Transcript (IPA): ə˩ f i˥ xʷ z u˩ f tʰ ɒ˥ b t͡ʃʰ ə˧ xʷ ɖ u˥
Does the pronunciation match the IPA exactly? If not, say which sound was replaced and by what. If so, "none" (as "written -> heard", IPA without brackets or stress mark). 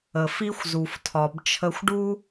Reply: ɒ˥ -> ɒ˩